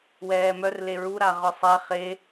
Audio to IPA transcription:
wɛːmœr leɹu ɾaʁœsˤɛ χe

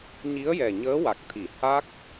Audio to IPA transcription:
ɲi˧˥ə̯jɛ˨˩ ɲəː˧˥wa˨˩k̚t̪ʰi˨˩˨ ha˦˥k̚

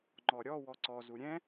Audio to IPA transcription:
ŋ͡ǃɔɾʲɔ wɔǀɔzu ɾʲɛ̃

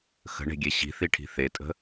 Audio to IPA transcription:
xə̤ɳe̤ ɡʲeɕi̤θiʈʰi̤ θetʼə̤

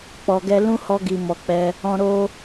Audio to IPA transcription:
k͡pɔ˨ɡɛ˧ lũ˦hɔ˧ɡi˨ mɔ˨k͡pɛ˧ | ɔ̃˧ ɾo˧

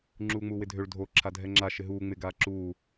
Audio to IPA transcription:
ŋ͡ǁuːŋ͡muːwɪdʱøɭ dʱo ǁʰadʱɛŋ͡ǁa ʃɪɦuː ŋ͡mɪ ɡaːǁuː

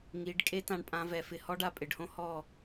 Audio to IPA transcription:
ŋi˨˦ɖkʼe˦ tã˦˨ɳpʼã˦vɛ˧fɪ˦˨ hɔ˦ɖa˧pʼɪ˨ɖhõ˦ hɔ˦˨

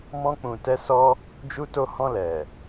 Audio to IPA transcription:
mɔ̃˧k͡pũ˨ tɛ˧sɔ˧ | d͡ʒu˧to˧hɔ̃˧ lɛ˨

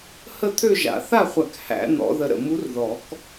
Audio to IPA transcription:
hə˥˧t̪ʰø˥˧ʒa̰˨˩˦ θa˥˧χʷæ˧˩k hæ̰˨˩˦n̪ɔ̰˨˩˦ ðə˧˩ɾə̰˧˩ mu˧˥rðɔ˨˩˦k

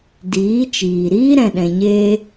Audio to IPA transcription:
diː˨˦t͡ʃiː˨ ɾiː˦ɾɛ̃˨ɗɛ̃˨ɲeː˧

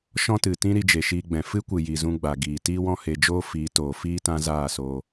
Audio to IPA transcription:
ʃɔ̃˦tɨ˨tĩ˦ ɾi˧d͡ʒe˨ʃiː˧ɡ͡bɛ̃˨ fɨ˦kʷɨ˨ji˨ zũ˧ɡ͡ba˨ɡiː˨ tiː˦wɔ̃˦he˧d͡ʒoː˦ fiː˨˦toː˨fiː˦ tã˦zaː˦˨soː˧

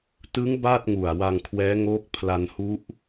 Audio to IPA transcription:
tɯ˦˥ŋ ba˥˩t̚ ŋu˨˩a̯wa˧ŋkʰwɛː˦˥ŋoː˦˥k̚ pʰla˧nhu˦˥ʔ

